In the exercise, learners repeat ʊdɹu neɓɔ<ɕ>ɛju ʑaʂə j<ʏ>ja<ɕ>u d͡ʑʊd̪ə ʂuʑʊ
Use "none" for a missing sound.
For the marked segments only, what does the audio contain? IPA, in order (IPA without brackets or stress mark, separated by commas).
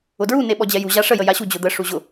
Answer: d͡ʑ, ə, ɕ